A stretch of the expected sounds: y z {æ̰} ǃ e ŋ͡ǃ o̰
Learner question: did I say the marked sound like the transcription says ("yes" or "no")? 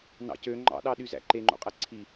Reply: yes